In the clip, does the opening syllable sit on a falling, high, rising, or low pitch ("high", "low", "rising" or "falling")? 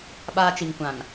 high